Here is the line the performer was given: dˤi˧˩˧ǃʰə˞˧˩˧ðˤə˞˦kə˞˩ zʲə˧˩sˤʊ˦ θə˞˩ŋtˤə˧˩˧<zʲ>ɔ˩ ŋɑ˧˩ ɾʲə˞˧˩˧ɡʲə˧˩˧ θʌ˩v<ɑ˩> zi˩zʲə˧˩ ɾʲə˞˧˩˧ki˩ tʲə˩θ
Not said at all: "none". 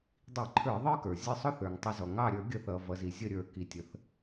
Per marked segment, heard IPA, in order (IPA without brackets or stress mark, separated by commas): z, ʌ˩